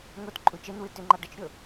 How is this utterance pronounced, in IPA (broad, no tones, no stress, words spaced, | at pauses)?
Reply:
ŋotǃʼu t͡ʃenwɨ tʏŋ͡ǃɑ ɖət͡ʃɾʲo